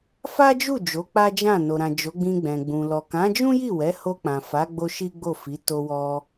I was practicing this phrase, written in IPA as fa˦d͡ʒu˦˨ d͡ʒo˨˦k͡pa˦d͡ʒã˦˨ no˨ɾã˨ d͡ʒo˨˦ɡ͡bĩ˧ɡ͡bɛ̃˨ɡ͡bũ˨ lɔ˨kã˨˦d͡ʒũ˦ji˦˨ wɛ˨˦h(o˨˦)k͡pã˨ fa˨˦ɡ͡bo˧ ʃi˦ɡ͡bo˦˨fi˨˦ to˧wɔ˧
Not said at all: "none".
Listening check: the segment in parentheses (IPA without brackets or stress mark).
o˧